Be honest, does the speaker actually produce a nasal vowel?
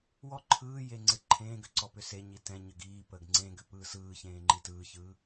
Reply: yes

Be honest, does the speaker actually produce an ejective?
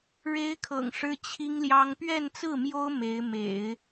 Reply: no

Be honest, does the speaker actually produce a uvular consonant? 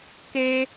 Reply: no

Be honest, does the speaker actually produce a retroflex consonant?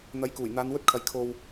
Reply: no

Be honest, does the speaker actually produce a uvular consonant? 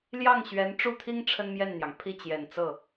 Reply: no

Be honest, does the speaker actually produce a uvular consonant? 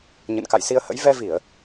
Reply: no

